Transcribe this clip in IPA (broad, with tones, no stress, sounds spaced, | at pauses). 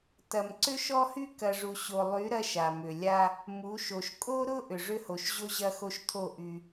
t ɐ˨ m ǀ ʏ˦ ʃ ɔ˦ h y˦ k ɐ˨ ʐ u˨ ɕ o˨ lˠ y˨˦ ɾ ɐ˦ ʃ a˨ m ʏ˨ lʲ a˦ | m u˨˦ ʃ o˨ ʃ kʼ o˦ ɾ ʊ˦ ʔ ʏ˨ ʐ ʏ˦ h o˨ ʃ ʑ o˦ ʑ ɐ˦ x o˦ ʃ tʰ o˦˨ ʔ y˦